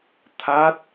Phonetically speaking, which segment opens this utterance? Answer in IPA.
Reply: t̪ʰ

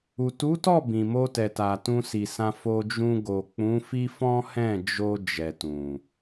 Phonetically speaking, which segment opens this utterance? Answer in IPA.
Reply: u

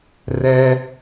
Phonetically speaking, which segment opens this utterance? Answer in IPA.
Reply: r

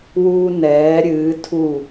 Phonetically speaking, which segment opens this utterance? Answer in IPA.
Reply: w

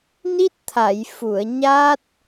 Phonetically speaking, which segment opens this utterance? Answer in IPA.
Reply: n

